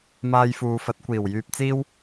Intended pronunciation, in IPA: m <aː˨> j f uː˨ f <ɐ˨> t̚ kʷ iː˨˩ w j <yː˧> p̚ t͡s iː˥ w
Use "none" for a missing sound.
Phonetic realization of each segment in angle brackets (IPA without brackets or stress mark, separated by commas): aː˧, ɐ˨˥, yː˧